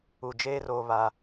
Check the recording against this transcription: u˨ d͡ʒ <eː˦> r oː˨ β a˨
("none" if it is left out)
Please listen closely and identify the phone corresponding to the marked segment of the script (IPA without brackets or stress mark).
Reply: eː˦